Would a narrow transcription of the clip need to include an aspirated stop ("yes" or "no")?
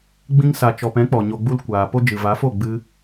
no